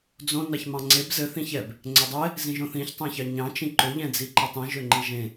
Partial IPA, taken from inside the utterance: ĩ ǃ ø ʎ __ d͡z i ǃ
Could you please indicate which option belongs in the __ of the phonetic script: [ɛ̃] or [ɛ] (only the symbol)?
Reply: ɛ̃